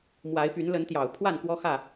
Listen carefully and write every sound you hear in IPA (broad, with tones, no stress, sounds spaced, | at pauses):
m w a˨˦ ɪ̯ p y˨˦ n l ə˨˦ n t̪ j ɑ˨˩ ʊ̯ pʰ w a˥˨ n k w ɔ˦ x ä˥˨